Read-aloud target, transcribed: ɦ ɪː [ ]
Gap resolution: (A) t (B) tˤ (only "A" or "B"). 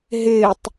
B